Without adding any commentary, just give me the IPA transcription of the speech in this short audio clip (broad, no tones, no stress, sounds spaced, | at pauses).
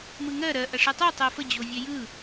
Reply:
m ɯ ŋ ɜ ɾ ɜ ʔ ɐ ʂ ɯ tˤ o tˤ ɜ f ə d͡ʑ o vʲ ɛ j ɯ